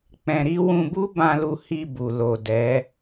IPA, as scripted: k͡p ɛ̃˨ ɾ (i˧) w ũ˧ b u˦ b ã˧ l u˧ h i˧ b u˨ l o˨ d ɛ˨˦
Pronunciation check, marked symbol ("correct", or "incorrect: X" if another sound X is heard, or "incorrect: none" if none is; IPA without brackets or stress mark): correct